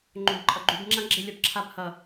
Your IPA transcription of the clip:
ŋ͡ǃõbǃʼʌɡ͡ǃyb ŋ͡ǁãɡ͡ǁɪ lʲɔbǁʰab hʌ

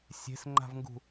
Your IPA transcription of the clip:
sʲe̤sŋ͡ǃa̤vŋɡṳ

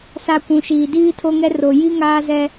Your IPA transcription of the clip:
sa˨ kʷũ˨ʃiː˨ diː˦tʰo˦ŋɛ˦ ro˨ji˦ ŋaː˦zɛ˦

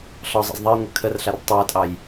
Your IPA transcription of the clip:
ɬɒzˤɑ̰z ðˤɛjŋʷœ kʰərɬar tˤəːtʼɑj

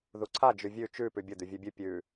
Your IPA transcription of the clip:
ðuǀʰa d͡ʒʉvʲʉ t͡ʃʉ pʉbʲʊ d̪ʉvʲʉbʲʉ pʲʉ

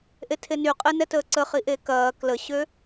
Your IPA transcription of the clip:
ʔetʰenyqʼe nɛtəːǀəχi ʔekɐː kləɕø

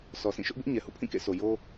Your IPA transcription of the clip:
sʰɔ˨sĩ˦˨ʃʊ˦ʔbɪ˦ʔ ɲɛ˨hṵ˦˨pʰĩ˦˨ kḛ˦˨sʰo˨ jo˦

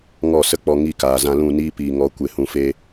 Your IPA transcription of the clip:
ŋɔ˦˨sə˦k͡pɔ˧ ŋi˦˨kaː˨zã˧lũ˦˨ niː˦piː˨ŋɔ˨˦ kʷe˨hũ˨fe˧

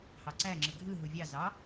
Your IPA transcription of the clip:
hɑǀæ ŋ͡ǁɯɡʱɯ ɦuvʲɑ zɑ

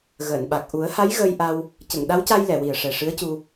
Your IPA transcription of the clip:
ɣəː˨˩˨nɓa˨˩k̚ ʔu˨˩˦ə̯ha˧˥j ɣəː˧jʔa˧w | cə˨˩˨ŋɗa˧˥wca˧j lɛ˨˩˨wi˨˩ə̯ʂɛ˨˩ ʂɨ˧˥ə̯cu˧

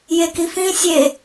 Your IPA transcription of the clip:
jekifĩ sʲe

